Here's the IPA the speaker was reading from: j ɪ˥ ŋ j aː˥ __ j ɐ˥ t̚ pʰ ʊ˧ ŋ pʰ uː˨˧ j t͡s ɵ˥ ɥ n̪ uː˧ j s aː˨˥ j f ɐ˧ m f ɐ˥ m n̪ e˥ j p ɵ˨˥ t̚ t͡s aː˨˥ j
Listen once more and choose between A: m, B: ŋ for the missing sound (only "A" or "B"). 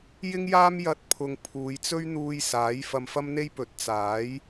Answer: A